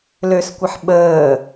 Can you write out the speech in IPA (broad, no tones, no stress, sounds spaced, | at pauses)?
l ø s kʷ ə ħ ɓ əː